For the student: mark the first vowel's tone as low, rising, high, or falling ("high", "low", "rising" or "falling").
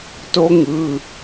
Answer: high